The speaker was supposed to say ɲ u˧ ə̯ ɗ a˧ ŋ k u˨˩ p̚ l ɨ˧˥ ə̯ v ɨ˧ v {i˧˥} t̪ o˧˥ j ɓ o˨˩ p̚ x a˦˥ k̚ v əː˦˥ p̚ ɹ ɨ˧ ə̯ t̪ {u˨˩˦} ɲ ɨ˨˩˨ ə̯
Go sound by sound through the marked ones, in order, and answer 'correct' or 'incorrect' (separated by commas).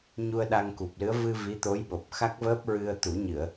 correct, correct